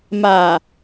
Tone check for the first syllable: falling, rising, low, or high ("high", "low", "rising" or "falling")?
low